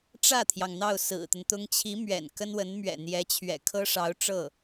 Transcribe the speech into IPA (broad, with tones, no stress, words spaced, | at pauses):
ʈ͡ʂä˥˩t̪ʰjɑ˩ŋ n̪ɑ˥˩ʊ̯sɹ̩˨˩t̪ə˦nt̪ʊ˥ŋ t͡ɕʰi˧˥ mɥɛ̰˨˩nkə˥nwə˧˥nmɥɛ̰˨˩ n̪jɛ˧˥t͡ɕʰɥɛ̰˨˩ kʰɤ˥ʂɑ˧˥ʊ̯ ʈ͡ʂɤ˥˩